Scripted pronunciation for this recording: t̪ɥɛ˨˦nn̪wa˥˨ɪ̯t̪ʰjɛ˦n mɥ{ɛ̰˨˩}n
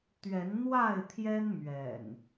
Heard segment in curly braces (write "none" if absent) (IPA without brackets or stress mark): ɛ̰˨˩